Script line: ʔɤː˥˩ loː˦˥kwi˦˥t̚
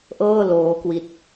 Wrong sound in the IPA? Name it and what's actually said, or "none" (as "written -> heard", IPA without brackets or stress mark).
none